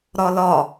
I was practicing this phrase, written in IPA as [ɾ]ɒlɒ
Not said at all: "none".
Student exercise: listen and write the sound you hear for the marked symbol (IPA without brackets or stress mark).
ɾ